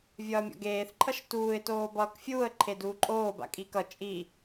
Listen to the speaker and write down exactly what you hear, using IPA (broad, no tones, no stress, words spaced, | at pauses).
vʲʌːmʲɔ̰ɡeːθ ǃʰʌʃtuːɪ̯ toːbʌːkfʲuːə̯ ǃʰeduːǃʼoː ba̰kʼikʌ t͡ʃʼi